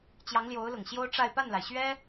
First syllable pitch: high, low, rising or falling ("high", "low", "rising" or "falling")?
rising